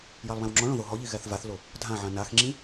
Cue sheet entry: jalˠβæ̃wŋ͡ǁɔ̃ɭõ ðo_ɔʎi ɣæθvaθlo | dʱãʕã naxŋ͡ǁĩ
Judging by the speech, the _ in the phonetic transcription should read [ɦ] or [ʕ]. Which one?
ɦ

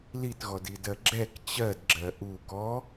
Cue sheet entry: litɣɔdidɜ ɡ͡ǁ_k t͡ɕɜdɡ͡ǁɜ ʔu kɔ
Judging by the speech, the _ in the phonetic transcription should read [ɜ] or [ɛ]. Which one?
ɛ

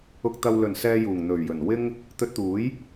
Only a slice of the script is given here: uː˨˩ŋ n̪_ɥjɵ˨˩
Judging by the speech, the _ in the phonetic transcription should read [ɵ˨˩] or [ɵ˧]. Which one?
ɵ˨˩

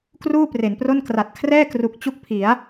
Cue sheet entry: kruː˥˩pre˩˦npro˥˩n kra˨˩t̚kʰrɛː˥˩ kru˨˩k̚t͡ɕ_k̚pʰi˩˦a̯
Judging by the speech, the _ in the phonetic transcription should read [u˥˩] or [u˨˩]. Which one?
u˥˩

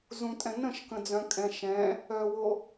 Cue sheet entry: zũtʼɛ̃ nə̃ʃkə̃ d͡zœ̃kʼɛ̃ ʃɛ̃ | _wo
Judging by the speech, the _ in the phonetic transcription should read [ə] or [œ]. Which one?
œ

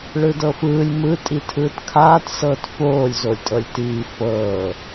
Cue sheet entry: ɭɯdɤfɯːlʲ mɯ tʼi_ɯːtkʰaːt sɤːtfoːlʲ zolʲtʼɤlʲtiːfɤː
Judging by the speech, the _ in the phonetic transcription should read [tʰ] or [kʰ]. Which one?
tʰ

